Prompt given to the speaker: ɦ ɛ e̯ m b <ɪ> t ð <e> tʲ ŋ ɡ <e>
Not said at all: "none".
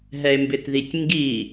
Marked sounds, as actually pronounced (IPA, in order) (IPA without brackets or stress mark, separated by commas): ɪ, i, i